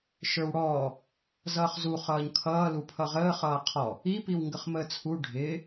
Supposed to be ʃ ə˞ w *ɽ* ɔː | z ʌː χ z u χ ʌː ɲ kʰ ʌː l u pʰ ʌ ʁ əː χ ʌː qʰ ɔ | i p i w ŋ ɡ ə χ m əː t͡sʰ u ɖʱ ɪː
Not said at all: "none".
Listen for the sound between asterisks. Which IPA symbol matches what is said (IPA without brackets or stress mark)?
ɽ